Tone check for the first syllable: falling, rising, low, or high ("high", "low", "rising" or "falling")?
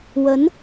rising